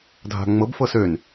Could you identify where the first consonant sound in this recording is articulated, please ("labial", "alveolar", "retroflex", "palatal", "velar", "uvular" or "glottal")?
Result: alveolar